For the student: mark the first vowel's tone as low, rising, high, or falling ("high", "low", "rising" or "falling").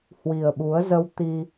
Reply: low